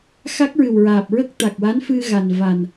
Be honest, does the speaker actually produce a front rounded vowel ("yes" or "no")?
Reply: no